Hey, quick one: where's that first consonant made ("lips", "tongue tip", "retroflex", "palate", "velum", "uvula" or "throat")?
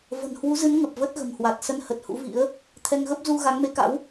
lips